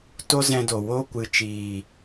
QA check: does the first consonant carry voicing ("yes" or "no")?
no